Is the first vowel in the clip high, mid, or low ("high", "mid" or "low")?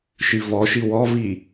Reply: high